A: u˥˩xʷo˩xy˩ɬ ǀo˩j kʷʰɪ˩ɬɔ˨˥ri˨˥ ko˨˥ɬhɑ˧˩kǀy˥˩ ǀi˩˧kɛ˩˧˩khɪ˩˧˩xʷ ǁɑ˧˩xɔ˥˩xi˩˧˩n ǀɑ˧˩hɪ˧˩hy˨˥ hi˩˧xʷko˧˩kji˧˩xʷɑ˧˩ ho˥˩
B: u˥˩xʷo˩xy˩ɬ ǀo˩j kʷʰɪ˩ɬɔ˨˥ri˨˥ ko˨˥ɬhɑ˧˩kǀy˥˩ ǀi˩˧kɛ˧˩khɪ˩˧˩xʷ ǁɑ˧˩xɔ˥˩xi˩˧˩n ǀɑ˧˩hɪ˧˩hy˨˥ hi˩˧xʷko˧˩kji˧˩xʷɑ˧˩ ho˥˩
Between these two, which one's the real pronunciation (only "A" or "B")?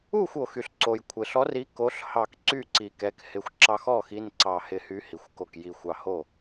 A